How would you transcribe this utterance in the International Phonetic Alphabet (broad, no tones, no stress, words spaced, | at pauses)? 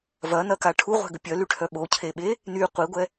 vɐnɐka ʈʰuʁʷɛ̤ɡə pʲœlyʈʰœ ɓocʰeɓe | ny qʷiɡʷɛ